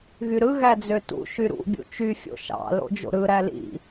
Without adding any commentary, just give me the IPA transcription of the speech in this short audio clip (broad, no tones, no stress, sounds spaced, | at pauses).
ɣ y ɾ ɯ ɣ æ d͡z ø t ṵ ʃ y ɾ ṵ bʲ ṵ t͡ʃ y fʲ o̰ ʃ ɑ̰ l o̰ d͡ʒ o̰ ɾ ɯ ɾ æ l ḭ